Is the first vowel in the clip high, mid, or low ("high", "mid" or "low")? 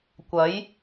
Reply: low